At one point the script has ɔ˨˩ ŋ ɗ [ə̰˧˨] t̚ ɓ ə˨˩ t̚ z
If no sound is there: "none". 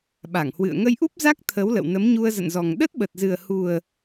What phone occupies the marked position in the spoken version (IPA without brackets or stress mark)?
ə˦˥